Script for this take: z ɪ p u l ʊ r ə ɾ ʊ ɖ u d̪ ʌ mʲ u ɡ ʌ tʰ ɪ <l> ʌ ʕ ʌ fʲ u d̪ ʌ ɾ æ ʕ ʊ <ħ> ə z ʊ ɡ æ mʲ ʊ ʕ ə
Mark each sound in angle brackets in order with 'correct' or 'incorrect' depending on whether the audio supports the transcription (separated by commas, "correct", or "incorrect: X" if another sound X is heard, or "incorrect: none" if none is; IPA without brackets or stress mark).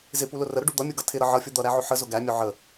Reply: incorrect: ɾ, correct